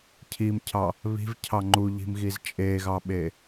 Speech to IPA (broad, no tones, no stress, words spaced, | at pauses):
cʰimcʰɑ | βi̤vcʰɑ ŋ͡ǃuʎi̤mɣiz t͡ʃʼeɣɑɓe